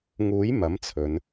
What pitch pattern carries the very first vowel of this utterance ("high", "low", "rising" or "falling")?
rising